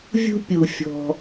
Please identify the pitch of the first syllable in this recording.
high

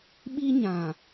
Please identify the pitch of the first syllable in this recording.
high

